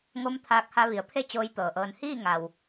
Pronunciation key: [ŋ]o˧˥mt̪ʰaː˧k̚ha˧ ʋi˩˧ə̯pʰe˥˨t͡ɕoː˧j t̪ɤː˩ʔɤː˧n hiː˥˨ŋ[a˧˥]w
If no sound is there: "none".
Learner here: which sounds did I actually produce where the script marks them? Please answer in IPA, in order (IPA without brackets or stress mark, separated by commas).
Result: ŋ, a˩